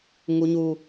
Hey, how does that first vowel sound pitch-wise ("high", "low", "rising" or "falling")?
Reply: high